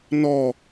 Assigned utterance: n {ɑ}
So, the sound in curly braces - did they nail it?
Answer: no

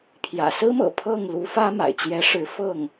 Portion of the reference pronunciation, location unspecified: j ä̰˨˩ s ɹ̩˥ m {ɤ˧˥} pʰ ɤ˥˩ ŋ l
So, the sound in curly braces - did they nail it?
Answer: no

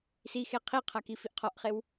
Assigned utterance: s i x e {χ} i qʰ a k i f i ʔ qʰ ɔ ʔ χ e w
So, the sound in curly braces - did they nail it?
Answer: no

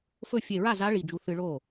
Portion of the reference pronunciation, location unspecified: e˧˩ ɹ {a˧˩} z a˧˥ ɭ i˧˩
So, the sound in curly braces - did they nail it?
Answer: no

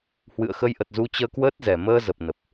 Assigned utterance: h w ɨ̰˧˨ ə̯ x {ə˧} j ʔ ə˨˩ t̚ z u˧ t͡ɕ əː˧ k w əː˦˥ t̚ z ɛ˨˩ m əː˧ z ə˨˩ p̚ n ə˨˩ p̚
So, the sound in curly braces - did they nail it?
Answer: yes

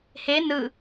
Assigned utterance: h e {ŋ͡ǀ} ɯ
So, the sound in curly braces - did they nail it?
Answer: no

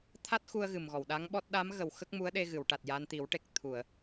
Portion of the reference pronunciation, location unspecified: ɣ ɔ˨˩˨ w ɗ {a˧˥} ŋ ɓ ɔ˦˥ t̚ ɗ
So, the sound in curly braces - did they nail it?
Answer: yes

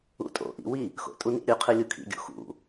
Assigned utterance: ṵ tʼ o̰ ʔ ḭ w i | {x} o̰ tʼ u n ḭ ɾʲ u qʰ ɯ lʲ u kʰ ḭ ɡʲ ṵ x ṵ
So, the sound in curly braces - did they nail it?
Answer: yes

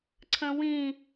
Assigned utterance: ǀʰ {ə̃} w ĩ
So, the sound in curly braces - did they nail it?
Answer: yes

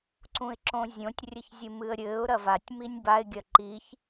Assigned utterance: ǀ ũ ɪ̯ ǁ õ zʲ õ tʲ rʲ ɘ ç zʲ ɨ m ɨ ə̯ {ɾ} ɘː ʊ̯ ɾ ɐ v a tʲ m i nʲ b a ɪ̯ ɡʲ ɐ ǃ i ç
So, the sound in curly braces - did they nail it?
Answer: no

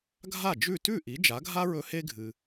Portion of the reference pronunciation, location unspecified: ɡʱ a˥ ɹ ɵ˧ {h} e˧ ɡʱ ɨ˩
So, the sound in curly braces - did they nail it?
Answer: yes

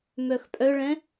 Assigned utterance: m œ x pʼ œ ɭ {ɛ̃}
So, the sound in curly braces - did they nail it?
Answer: yes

